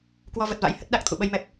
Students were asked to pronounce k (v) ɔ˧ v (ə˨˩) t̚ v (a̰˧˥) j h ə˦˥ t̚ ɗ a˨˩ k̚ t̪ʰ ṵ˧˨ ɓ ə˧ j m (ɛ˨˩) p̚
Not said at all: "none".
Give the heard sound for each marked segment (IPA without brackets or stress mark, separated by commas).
w, ə˨˩, a̰˧˥, ɛ˨˩